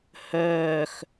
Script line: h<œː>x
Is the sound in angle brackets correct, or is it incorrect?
correct